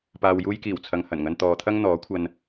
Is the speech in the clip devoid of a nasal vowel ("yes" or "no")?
yes